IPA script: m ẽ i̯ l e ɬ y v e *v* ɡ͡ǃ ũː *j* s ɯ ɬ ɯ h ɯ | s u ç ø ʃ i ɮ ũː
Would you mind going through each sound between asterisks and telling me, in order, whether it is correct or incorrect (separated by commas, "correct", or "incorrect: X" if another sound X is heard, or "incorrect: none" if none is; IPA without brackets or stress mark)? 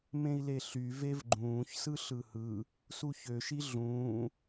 correct, incorrect: ç